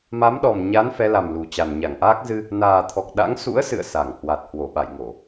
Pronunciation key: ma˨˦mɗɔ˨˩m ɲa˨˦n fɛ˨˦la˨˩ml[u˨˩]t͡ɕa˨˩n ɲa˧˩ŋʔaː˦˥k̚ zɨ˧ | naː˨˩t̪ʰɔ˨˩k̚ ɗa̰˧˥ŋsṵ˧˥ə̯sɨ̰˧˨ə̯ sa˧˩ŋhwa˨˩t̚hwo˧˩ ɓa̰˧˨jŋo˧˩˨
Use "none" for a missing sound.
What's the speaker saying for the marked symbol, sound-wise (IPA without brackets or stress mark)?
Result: u˨˩